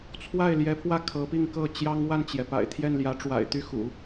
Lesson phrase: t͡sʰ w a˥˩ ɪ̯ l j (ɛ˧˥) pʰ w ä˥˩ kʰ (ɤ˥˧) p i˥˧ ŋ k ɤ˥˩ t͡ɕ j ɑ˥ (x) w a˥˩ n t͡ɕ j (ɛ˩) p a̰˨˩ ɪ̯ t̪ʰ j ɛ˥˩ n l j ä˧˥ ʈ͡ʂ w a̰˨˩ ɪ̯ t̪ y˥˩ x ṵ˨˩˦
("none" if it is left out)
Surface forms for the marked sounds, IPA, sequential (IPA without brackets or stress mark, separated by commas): ɛ˧˥, ɤ˧˥, ŋ, ɛ˩